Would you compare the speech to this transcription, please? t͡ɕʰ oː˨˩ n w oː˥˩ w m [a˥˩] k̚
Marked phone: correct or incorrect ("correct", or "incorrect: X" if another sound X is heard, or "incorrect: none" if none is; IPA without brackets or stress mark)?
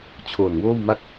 correct